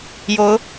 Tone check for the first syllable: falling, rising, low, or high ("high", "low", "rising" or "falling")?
rising